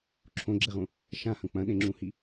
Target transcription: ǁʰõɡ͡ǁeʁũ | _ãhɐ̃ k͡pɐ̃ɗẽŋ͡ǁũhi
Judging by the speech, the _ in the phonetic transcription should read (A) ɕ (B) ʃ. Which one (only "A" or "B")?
B